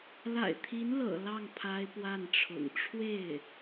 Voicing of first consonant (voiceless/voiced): voiced